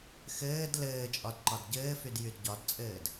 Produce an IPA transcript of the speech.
x ɘː d l ɘː t͡ʃʼ ɒ d ǃ ɒ d ɟ ɘː f y d j y d ɟ ɒ d t͡sʼ ɘː d

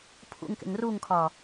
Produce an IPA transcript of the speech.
pʰ ṵ ŋ k ḛ ŋ r u ŋ kʰ ɒ

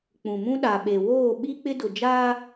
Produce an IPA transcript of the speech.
k͡p ũ˨ m ũ˦ ɗ a˨ ɓ e˨ w oː˦˨ ɓ i˦ k͡p ɪ˦ d ʊ˨ d͡ʒ aː˦

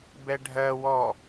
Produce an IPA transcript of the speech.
b ɛ ɖʱ ɜ w ɔ

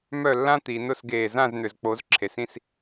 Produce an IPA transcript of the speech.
m œ˥˩ lː ã˥ t̪ i˩˧ n ʊ˥˩ s ɡ eː˧˩ z ã˥˩ z n̪ ʏ˩ z k͡p o˩˧ z ǁʰ e˩ s ĩ˥˩ s

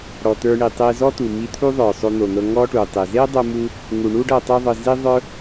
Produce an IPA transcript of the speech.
ɽ ɔ˩ t̪ ə˞˧ ɳ i˩ tˤ e˧ z ɔ˥ t̪ u˩ m i˧ t̪ʰ u˥ ðˤ ə˞˩ sˤ o˧ n̪ o˩ n̪ ɤ˧ ŋ ɔ˥ ʈ u˩ tˤ e˩ z e˥ dˤ o˥ m u˥ | ŋ u˩ ɳ u˥ ɖ ɤ˧ tˤ o˥ ðˤ ɤ˧ z i˥ ðˤ ə˞˥

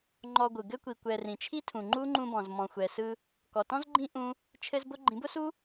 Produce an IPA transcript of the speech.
ŋ͡ǃ ɔ˧ ɡʷ ɯ˨ ɡ ɘ˧ kʷ i˨ kʷ ɛ˨ r ĩ˨ t͡ʃʰ i˦ tʰ ũ˨ ŋ͡ǃ u˦ ŋ͡ǃ ũ˧ b ɔ̃˨ z m ɔ̃˨ xʷ ɛ˨ s ɯ˧ | k ɔ˨ t ɔ̃˦ z ɡ͡ǃ ĩ˦ ʔ ũ˦ | t͡ʃʰ ɘ˦ z b ʊ˦ ɡ͡ǃ ĩ˨˦ b ʊ˦ s u˦

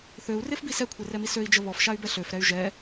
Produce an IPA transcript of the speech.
θ ø u̯ r e f b i s ɛ kʷʰ e r ɛ m i s ø i̯ d͡ʒ ə β ɔ f ʃ a y̯ b ɛ ɬ ø f ɾ ɛ y̯ ʒ ɛ

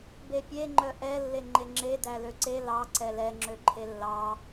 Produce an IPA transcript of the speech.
b e pʲ e ŋ͡ǃ œ ʔ ɛ lː e ŋ͡ǃ e ŋ͡ǁ e d æ l ø ǀ e l ɑ ǀ ɛ l ɛ ŋ͡ǁ ø ǃʰ e lː ɑ

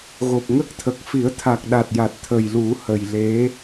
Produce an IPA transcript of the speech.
ɣ o˨˩ p̚ ŋ ə˦˥ k̚ t̪ʰ ə˨˩ k̚ f i˨˩˦ ə̯ t̪ʰ a˨˩ k̚ ɗ a˨˩ t̚ j a˨˩ t̚ t̪ʰ ə˨˩ j l u˨˩˦ h ə˨˩ j l e˧˥

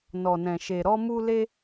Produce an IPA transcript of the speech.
n ɔ˨ n ɛ̃˨ ʃ e˨ ɾ ɔ˧ m u˧ l e˧

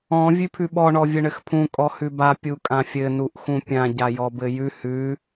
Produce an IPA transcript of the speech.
ɔ̃ vʲ ʉ pʰ ʉ ɓ ɔ ɳ ɔ vʲ ɘ ɳ ɘ x pʰ ũ kʼ ɔ h ʉ b a pʲ u kʼ ã fʲ ɘ n u ʔ x ũ pʲ ã ɟ a j ɔ b ɘ j ʉ h ʉ

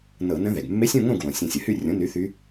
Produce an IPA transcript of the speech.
n ɤ˧˩˧ n ə̃˧˥ ð ɛ˩ ɡ mː e˧˥ sʲ õ˥˨ ŋ õ˥˨ ɡ w õ˩ sʲ ə̃˧˩ sʲ ə˩ h y˥˨ rʲ õ˩˥ n y˩˥ θ y˧˥

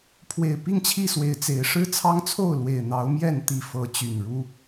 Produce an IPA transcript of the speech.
pʰ w e˨˩ ɪ̯ p i˥˨ ŋ t͡ɕʰ i˥˨ s w e˨˦ ɪ̯ t͡s e˨˦ ɪ̯ ʂ ɻ̩˦ t͡sʰ ɑ˦ ŋ t͡sʰ o˥˨ ʊ̯ l w e˨˩ ɪ̯ n̪ ɑ˨˦ ʊ̯ m j ɛ˥˨ n t̪ i˥˨ f ɤ˨˦ t͡ɕ y˨˩ n ɻ u˦

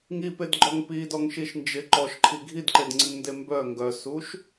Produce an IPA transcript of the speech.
ŋ i p e d ɡ͡ǃ ɔ ŋ p i d ɔ ŋ ʃ i ʃ n d͡ʒ ɪ ǃ ɔ ʃ ǃʰ i ɡʱ i d ǃ e d ŋ͡ǀ ɪ ŋ n d e m b œ ŋ ɡ œ s u ʃ

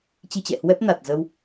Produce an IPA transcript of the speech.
t͡ɕ i˧ t͡ɕ ɛ̰˧˨ h w ɛ˦˥ p̚ n a˨˩ t̚ z ə˧ w

